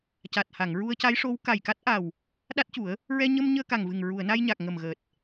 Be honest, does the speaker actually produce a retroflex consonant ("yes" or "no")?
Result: yes